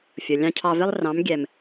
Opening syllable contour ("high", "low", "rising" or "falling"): low